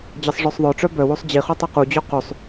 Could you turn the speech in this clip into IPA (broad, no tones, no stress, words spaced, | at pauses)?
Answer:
d͡ʑʌsˤʐœsˤðˤœʈ͡ʂœ bœwosˤ d͡ʑiχo tˤʌqud͡ʑɔ qʉsˤ